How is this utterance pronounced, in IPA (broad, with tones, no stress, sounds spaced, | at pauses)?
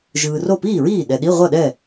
ʒ ɯː˨ r o˥˩ p iː˥˩ ɹ iː˥˩ ɗ ɛ˨ ɗ i˧˥˧ ʁʷ ʌ˥˩ ɗ ɛ˥˩